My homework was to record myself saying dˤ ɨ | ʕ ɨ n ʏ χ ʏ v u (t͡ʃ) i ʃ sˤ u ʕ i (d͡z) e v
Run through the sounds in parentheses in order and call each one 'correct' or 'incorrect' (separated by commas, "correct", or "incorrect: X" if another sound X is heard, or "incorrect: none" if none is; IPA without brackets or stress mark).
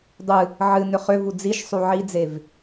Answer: incorrect: d͡z, correct